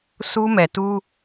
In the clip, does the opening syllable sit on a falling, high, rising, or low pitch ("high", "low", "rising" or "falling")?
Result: high